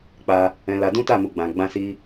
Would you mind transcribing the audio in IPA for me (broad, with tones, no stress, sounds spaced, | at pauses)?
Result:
k͡p a˧ | ɛ̃˧ l a˧ d ũ˦ t a˦˨ m u˨ ɡ͡b ã˨ ɡ͡b ã˧ s i˧